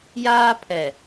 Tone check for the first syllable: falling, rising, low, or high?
high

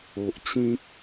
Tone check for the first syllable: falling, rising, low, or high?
low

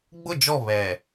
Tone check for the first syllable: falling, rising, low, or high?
falling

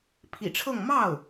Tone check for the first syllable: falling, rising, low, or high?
low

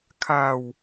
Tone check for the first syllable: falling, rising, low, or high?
low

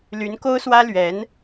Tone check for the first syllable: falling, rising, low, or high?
rising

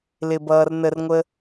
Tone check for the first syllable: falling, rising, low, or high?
low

